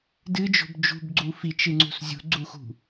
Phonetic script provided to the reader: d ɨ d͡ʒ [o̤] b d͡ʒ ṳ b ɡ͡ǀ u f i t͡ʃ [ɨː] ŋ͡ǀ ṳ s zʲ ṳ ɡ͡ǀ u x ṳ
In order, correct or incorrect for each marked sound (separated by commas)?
correct, incorrect